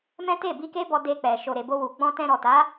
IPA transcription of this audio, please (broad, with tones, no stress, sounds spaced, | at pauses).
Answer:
m ɛ̃˦ t e˦˨ b i˧ k e˦ b ɔ˧ d e˧ k͡p ɛ˨ ʃ o˨ ɾ e˨ b o˧ w u˨ ɡ͡b ɔ̃˧ t ɛ̃˧ ɾ ɔ˨ t a˨˦